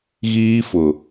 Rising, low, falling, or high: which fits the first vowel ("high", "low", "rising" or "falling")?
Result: high